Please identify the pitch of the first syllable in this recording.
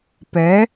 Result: rising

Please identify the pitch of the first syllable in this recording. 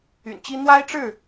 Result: low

